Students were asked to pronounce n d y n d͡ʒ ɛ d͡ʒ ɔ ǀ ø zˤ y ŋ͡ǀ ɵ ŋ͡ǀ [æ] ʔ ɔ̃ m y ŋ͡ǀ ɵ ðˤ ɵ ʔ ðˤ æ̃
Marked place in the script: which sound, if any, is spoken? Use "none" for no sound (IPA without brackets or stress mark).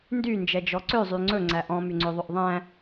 æ